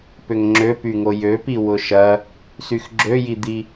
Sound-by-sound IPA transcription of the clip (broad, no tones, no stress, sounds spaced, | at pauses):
p ʏ ŋ ŋ͡ǁ ø p y ŋ o j ø p i w ʊ ʃ ɐ | s y x ɡ͡ǁ ø j i d̪ i